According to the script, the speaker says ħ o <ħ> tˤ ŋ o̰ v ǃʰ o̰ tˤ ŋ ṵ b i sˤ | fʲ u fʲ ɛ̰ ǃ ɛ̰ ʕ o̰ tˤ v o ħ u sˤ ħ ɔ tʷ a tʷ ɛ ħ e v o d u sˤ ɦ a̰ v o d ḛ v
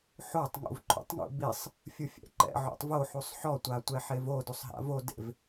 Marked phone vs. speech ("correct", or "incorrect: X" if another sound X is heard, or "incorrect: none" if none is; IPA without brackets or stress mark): incorrect: none